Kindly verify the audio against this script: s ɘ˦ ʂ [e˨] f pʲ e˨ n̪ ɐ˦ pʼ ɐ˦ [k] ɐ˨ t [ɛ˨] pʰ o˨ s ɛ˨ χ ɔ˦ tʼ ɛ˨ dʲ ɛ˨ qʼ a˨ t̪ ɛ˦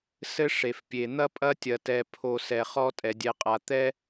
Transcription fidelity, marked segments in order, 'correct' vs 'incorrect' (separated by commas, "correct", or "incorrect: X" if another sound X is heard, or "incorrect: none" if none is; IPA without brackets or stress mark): correct, incorrect: tʲ, correct